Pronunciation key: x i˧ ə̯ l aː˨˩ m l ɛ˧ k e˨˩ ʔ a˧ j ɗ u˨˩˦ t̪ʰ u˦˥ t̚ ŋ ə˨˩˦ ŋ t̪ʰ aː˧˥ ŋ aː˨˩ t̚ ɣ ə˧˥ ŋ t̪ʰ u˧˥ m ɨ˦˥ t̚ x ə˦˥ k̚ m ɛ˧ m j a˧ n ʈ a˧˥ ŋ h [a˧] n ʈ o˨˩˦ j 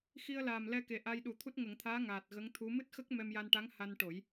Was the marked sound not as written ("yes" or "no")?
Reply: no